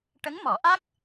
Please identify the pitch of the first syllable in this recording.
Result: rising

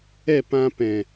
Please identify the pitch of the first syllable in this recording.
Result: falling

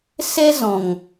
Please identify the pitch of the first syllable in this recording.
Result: high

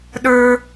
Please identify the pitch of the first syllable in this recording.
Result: high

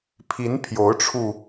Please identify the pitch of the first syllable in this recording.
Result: rising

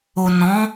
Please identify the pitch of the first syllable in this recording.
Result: low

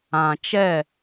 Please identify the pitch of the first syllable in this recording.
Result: low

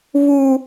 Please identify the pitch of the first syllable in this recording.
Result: high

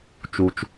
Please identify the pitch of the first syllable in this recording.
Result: low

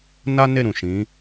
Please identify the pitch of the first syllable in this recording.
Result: high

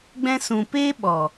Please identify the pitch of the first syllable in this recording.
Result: high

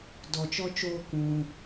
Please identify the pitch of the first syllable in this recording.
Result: low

